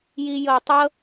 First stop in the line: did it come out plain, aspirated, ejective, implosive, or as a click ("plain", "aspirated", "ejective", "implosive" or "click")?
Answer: plain